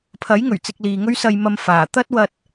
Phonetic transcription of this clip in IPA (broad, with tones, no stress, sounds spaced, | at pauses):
pʰ ɐ˨˥ j ŋ ɵ˨˩ ɥ t͡s ɪ˧ k̚ l iː˨ ŋ ɵ˥ ɥ s ɐ˧ j m ɐ˧ m f aː˨˩ t̪ ɐ˥ t̚ w ɐ˧ t̚